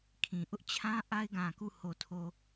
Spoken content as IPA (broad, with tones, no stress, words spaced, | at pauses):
kʰĩ˨ ʔʊ˦ʔt͡ɕʰã˦ ʔa˦ɪ̯ɡã˨ku˦˨ ho˨tʰo˨